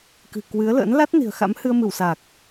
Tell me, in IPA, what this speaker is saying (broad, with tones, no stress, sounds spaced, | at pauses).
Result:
k ɨ̤˨˩ k w ɨ˨˦ ə̯ l ə̰˧˥ n l a˦˥ t̚ n i̤˨˩ ə̯ x a̰˧˥ m h ɨ˧ ə̯ m ɨ˧˩ w s a˨˩ k̚